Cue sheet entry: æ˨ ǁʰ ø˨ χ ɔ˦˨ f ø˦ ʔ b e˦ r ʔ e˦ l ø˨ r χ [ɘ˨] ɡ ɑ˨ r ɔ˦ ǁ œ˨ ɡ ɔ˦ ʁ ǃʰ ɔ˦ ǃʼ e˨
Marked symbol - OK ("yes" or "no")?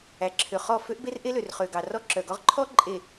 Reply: no